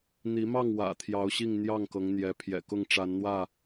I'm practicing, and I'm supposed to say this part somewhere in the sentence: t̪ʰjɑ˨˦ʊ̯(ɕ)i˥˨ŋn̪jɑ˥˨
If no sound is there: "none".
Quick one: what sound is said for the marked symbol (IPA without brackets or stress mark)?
ɕ